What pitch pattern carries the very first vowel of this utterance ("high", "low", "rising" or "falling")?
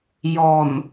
low